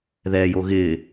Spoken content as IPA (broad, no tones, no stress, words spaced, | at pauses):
ðɛːjoɣɪː